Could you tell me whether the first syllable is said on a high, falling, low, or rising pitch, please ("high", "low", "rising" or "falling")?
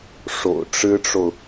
low